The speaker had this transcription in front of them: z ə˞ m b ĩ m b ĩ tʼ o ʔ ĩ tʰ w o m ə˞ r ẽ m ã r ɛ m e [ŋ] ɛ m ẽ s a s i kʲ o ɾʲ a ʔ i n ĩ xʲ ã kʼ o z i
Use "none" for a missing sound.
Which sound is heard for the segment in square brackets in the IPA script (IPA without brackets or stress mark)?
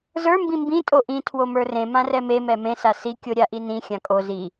m